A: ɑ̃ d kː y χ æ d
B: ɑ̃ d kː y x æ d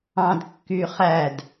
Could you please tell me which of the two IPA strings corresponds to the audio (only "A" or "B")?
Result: A